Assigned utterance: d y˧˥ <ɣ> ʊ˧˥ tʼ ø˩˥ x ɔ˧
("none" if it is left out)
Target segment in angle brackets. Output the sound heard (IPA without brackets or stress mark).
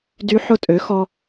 ħ